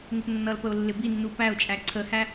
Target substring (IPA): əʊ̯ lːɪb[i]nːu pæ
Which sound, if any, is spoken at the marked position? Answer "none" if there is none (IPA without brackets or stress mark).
i